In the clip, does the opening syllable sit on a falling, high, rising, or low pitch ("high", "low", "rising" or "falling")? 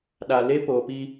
low